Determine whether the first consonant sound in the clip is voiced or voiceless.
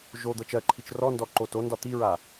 voiced